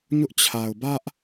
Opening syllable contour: high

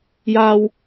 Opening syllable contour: high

